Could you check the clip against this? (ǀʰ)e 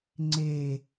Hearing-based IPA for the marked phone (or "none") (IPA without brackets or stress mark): ŋ͡ǀ